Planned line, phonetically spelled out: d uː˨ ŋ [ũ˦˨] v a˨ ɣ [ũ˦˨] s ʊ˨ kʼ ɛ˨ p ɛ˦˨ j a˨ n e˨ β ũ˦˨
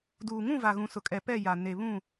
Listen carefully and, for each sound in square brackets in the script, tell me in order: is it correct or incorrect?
correct, incorrect: ũ˨

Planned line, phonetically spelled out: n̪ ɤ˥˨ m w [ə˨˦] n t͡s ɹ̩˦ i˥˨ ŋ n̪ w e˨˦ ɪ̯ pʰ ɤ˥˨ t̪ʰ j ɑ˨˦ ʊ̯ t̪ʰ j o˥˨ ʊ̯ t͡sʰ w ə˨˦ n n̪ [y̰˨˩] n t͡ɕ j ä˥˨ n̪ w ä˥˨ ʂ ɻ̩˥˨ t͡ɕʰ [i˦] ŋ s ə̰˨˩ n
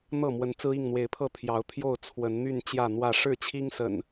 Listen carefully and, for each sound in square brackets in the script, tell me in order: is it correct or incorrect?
correct, incorrect: y˥˨, correct

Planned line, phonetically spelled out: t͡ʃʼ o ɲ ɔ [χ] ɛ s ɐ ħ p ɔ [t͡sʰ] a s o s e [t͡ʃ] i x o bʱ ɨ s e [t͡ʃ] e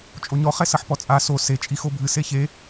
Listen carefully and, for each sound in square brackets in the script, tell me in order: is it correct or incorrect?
correct, incorrect: t͡sʼ, incorrect: t͡ʃʼ, incorrect: ç

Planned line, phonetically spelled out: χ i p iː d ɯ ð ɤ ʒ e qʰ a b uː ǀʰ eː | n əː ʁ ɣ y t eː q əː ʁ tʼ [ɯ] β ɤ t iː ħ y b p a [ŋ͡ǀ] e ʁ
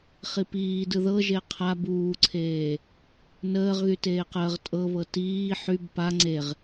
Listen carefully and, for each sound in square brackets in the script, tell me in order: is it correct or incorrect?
incorrect: ɤ, correct

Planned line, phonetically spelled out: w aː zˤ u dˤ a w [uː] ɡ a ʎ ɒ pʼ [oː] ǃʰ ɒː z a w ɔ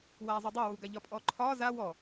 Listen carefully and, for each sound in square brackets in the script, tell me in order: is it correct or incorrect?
correct, incorrect: ɔː

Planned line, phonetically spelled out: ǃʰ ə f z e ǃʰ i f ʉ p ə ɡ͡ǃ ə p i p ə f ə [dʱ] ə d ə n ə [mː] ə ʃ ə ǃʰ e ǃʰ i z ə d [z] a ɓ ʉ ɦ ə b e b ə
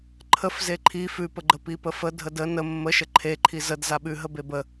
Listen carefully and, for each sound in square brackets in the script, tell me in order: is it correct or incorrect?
correct, correct, correct

